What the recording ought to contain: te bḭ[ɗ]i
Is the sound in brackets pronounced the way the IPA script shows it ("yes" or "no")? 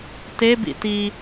no